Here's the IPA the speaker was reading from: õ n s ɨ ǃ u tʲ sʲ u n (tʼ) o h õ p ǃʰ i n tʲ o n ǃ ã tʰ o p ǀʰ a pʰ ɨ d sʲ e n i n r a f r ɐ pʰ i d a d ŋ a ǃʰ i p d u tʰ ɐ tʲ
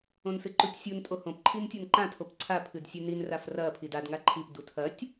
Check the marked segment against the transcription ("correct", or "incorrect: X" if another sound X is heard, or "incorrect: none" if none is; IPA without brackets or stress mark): correct